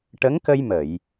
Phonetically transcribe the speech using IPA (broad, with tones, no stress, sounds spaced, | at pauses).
ʈ ə˧˥ ŋ k ə˧ j m ə˨˩˨ j